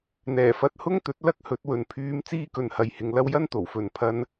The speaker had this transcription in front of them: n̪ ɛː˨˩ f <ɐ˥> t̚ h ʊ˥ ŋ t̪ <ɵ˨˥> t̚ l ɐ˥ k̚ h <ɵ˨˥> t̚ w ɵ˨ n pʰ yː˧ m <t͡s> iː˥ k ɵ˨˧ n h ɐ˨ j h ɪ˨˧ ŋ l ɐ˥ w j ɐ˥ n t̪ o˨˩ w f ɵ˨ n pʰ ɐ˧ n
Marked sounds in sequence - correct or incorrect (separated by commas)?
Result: incorrect, correct, correct, correct